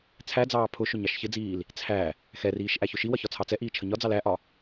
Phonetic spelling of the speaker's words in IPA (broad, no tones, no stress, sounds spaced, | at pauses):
t͡sʰ æ d͡z ɑː pʰ ʊ ʃ ʊ ɲ ɑ ʃ ç ɪ d͡z iː l | t͡sʰ æ | x ɛ r iː ʃ ʔ æ ç ʊ ʃ i w ʌ ç ɒ t͡sʰ ɑ t͡s ɛ ʔ iː t͡ʃʰ ə ɲ ɒ d͡z ɑ l æ ʔ ɒ